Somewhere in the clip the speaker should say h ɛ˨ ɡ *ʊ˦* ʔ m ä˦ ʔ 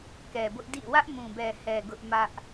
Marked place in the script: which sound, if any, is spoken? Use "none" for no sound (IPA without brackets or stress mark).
ʊ˦